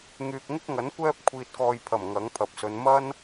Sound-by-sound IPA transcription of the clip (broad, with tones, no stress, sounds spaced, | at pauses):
ŋ yː˨ k̚ ŋ ɪ˥ k̚ ŋ ɐ˨˥ n kʷ ɛː˥ p̚ kʷʰ iː˧ t̚ k ɔː˧ j pʰ ɐ˨˩ m ŋ ɐ˨˥ ŋ pʰ ɐ˨ p̚ s ɵ˨˧ n m ɐ˥ n